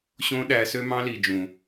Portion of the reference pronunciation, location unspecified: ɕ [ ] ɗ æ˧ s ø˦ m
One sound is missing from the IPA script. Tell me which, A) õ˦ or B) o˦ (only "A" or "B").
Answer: A